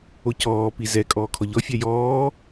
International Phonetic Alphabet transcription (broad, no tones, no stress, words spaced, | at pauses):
ocɔːpi zɛ kʼɔːkʰɔʎɔfʲa jɔː